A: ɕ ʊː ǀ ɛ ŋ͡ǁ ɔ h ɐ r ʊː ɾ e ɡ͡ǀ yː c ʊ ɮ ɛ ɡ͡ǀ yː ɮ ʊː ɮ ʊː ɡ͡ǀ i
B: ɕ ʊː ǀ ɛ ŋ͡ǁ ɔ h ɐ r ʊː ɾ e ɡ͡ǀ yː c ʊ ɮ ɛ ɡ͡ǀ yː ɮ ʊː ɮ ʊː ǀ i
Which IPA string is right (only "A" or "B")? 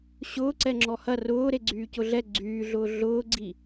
A